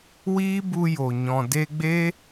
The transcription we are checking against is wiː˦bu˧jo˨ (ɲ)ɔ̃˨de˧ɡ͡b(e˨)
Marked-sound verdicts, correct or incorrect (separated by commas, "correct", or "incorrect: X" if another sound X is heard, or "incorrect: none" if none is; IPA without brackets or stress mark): correct, incorrect: e˦